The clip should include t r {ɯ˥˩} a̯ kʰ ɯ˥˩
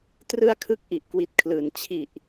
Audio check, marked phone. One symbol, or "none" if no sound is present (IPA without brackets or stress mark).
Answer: ɯ˥˩